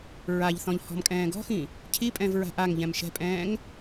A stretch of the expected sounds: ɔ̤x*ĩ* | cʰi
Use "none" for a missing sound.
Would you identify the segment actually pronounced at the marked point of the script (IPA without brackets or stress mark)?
ĩ